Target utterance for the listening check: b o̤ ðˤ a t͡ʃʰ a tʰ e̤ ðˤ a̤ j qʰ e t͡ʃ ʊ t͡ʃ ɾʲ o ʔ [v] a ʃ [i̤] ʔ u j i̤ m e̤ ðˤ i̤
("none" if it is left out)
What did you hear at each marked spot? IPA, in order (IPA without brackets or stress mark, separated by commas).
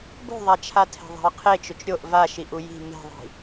v, i